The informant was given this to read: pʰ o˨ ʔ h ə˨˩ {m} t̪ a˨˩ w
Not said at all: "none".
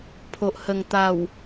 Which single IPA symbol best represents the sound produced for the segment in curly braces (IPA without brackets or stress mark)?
ŋ